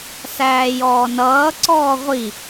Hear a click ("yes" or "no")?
yes